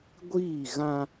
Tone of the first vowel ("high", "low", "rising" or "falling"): falling